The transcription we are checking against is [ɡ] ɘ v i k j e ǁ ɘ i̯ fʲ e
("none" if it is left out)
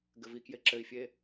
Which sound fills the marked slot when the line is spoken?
ɡ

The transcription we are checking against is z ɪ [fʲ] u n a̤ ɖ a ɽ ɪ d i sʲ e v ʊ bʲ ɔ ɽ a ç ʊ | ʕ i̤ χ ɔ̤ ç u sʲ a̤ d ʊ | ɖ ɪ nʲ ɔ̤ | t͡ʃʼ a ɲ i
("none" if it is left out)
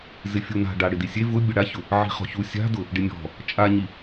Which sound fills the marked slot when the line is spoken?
fʲ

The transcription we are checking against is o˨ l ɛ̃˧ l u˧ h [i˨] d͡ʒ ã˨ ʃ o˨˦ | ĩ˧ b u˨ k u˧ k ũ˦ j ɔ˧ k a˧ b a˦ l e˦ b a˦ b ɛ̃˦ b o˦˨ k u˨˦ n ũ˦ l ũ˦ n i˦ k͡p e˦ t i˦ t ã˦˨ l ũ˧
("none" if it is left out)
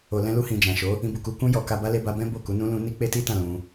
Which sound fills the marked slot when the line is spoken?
ĩ˨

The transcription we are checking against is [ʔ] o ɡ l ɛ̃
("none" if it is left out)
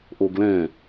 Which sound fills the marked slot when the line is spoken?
ʔ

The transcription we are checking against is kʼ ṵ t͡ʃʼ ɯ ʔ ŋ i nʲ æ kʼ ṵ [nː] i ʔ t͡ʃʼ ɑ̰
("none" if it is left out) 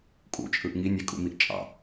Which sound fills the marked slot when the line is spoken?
m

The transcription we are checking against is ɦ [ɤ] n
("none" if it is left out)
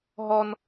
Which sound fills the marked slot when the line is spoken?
ɔ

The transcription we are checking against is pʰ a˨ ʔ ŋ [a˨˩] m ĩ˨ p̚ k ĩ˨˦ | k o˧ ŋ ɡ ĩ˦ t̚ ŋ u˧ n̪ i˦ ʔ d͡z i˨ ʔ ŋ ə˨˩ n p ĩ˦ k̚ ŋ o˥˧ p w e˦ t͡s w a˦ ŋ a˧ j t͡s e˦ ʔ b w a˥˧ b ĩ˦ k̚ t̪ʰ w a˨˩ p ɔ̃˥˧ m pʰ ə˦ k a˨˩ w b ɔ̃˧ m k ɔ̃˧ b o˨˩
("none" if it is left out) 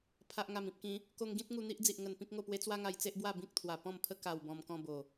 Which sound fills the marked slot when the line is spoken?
a˨˩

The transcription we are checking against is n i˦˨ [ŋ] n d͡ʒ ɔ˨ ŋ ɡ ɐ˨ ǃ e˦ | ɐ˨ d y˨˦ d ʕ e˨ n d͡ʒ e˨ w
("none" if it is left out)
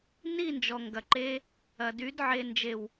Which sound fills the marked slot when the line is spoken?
none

